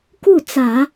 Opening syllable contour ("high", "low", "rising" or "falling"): falling